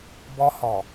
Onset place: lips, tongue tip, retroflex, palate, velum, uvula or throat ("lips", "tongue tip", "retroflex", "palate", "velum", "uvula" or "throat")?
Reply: lips